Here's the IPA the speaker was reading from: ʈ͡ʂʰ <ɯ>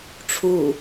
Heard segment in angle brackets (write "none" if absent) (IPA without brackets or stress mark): u